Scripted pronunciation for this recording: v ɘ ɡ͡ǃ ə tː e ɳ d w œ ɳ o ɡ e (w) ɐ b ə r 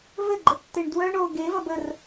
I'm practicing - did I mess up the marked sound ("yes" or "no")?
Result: yes